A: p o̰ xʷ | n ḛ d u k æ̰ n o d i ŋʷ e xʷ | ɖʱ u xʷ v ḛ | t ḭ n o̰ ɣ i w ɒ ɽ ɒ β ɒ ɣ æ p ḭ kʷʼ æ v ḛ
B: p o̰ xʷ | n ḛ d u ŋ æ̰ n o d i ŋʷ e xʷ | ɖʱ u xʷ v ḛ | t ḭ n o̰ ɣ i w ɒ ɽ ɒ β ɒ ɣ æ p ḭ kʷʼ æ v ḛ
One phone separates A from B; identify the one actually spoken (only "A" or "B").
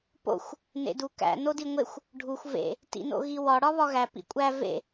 A